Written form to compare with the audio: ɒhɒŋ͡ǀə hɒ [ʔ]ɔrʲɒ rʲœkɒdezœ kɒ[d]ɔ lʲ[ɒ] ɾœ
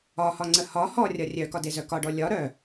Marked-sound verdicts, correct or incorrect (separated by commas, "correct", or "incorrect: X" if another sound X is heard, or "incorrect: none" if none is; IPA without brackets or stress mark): incorrect: h, incorrect: ɖ, correct